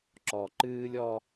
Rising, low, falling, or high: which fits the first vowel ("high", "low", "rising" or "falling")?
low